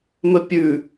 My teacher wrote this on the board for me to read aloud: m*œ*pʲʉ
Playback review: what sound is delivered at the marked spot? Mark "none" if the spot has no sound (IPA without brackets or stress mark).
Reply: ɵ